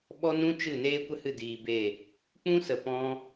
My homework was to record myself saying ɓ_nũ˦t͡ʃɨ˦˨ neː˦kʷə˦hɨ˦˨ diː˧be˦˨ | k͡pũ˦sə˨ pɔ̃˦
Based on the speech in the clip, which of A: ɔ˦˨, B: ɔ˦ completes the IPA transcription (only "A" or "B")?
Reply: B